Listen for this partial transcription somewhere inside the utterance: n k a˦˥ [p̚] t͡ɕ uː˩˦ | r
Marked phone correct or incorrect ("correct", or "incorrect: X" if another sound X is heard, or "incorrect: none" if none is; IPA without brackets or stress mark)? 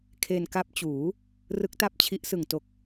correct